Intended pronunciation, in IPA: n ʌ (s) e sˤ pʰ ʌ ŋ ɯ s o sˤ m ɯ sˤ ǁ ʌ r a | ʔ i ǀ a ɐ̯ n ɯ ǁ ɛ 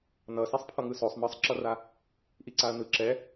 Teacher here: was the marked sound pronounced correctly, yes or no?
yes